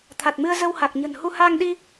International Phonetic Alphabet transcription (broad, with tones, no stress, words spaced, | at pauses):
t̪ʰa˨˩t̚mɨ˧ə̯ zə˧wha˨˩k̚ɲə̤˨˩nhu˧ haː˧ŋɗi˧